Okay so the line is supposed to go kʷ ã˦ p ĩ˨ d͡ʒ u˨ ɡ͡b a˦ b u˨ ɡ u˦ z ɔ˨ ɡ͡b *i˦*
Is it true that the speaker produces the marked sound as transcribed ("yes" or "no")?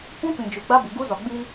yes